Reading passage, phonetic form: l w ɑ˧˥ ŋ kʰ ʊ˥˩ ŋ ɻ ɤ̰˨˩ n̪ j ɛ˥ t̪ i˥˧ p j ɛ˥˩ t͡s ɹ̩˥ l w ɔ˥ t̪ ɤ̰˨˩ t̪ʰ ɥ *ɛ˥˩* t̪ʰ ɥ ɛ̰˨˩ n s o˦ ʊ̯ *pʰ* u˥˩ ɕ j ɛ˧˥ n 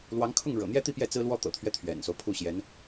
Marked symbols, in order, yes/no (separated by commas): no, yes